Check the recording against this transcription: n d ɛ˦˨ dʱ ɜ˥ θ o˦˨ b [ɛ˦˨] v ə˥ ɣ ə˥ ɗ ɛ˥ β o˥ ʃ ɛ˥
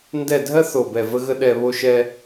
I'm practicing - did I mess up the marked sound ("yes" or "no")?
no